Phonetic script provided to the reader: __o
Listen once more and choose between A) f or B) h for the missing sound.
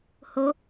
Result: B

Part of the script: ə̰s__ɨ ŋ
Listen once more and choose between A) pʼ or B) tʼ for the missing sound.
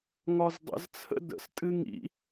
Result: B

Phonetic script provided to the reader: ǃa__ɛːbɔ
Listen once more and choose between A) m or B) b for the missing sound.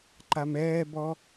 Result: A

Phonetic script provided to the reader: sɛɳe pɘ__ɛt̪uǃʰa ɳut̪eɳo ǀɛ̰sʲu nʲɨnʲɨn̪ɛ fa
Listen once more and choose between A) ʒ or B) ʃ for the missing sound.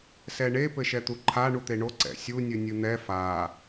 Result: B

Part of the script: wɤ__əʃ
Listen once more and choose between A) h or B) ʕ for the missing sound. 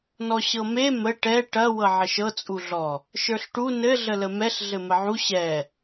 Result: B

